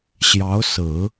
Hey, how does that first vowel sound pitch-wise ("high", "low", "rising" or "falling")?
rising